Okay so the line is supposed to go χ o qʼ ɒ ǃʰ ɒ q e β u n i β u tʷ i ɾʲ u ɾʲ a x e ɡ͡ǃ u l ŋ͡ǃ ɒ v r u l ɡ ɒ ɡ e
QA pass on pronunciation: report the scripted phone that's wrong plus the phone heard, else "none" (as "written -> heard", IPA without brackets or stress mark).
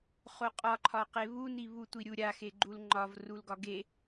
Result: none